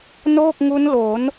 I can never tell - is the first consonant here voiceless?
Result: no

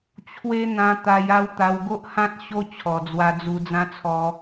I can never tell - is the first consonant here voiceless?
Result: yes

